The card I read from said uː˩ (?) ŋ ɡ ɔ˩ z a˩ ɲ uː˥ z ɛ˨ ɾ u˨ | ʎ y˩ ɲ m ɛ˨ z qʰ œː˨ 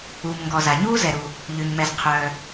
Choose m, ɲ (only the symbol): m